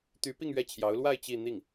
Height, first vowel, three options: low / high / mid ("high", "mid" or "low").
high